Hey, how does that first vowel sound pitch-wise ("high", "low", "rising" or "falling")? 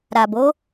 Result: low